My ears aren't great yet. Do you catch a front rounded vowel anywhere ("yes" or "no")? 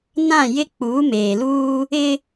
no